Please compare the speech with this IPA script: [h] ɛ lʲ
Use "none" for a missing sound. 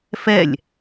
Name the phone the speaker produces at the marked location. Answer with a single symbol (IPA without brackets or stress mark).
f